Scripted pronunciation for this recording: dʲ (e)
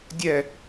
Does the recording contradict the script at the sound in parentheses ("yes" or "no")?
yes